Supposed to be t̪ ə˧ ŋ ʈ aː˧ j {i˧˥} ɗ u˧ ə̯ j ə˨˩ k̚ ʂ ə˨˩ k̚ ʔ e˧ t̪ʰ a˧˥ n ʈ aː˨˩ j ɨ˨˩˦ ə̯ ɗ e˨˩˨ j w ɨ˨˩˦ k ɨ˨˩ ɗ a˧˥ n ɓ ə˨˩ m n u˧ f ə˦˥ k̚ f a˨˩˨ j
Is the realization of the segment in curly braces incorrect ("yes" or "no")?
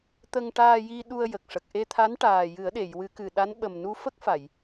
yes